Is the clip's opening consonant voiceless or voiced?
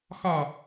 voiceless